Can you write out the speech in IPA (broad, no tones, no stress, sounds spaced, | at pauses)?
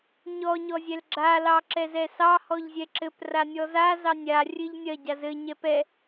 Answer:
ɲ ɔ ɲ ɔ zʲ ɛ l ɡ͡ǁ a l ɑ ǁ ɛ z ɛ s ɑ h ɔ ʎ zʲ ɛ ǁ ɘ p r a nʲ ɔ z a z ɑ nʲ a rʲ ɘ ʎ nʲ ɐ ɟ a z ɘ ɲ ɛ p ɛ